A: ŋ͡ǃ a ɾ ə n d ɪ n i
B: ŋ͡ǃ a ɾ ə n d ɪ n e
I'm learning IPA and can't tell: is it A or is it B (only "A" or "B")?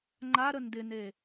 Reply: B